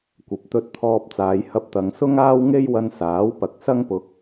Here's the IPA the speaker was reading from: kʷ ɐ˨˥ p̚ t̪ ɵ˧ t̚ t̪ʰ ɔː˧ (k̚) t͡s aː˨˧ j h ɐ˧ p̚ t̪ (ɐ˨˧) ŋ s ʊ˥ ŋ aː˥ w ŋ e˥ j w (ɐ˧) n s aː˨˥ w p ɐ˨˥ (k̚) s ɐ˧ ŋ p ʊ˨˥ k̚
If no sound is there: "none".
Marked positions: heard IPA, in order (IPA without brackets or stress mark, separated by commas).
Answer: p̚, ɐ˨˧, ɐ˧, k̚